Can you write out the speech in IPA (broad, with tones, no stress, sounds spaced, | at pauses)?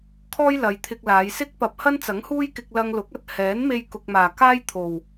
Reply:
kʰ ɔː˥ j l ɐ˨˧ j t̪ʰ ɪ˧ k̚ l aː˨˧ j s ɪ˥ k̚ p ɐ˨ p̚ h ɐ˥ n t͡s ɐ˨˥ ŋ h uː˥ j k ɪ˧ k̚ l ɐ˧ ŋ l ʊ˨˥ k̚ ɐ˨ t̚ h ɛː˨˥ n m e˧ j k ʊ˧ k̚ m aː˨ k aː˥ j t̪ʰ o˨ w